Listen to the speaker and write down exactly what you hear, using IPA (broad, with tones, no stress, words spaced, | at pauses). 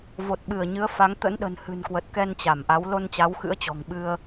vo˨˩t̚ɓɨ˧˩ə̯ɲɨ˨˦ə̯ fa˨˦ŋ t̪ə̰˧˥nɗə̤˨˩nhɨ̤˨˩nkwə˨˩t̚ kɛ˧nt͡ɕa˧˩mʔa˨˦w lo˧nt͡ɕa˨˦wxɨ̰˧˥ə̯t͡ɕɔ̤˨˩ŋ ɓɨ˧ə̯